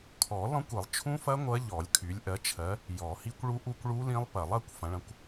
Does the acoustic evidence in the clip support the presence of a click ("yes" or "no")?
no